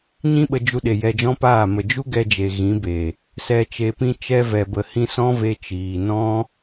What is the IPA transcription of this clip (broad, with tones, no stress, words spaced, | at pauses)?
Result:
ɲĩ˦ɓə˧ d͡ʒu˧ɗe˨ jɛ˧d͡ʒɔ̃˦paː˦˨ mə˨d͡ʒu˦ ɡɛ˧d͡ʒe˨ ɣĩ˨˦be˨ | sɛ˨t͡ʃe˨pĩ˧ t͡ʃɛ˧vɛ˨bə˨hĩ˧ sɔ̃˦ve˧t͡ʃiː˨nɔ̃˦